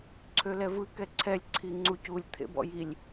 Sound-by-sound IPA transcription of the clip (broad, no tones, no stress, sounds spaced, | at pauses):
ǀʰ ø l ɛ v ɯ k ɛ ǀʰ ɛ lʲ ǀʰ i ŋ͡ǀ u c u lʲ t̪ʰ ḛ b ɔ̰ j i lʲ